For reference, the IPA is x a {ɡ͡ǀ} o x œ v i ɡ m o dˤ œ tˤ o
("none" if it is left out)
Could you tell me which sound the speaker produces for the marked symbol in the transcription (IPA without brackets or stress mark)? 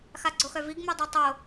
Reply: ɡ͡ǀ